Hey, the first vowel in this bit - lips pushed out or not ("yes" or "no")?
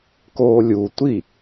yes